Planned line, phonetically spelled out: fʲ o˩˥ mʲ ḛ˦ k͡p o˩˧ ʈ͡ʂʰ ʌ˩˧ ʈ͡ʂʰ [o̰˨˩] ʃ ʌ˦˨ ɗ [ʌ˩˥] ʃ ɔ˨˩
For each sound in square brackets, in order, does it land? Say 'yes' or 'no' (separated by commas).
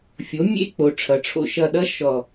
no, no